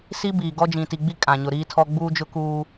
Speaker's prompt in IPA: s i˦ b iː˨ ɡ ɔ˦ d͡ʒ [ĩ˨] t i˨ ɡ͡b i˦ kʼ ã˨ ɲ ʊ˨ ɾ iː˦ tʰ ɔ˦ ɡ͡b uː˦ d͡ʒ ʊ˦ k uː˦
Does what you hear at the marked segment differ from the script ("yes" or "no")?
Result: no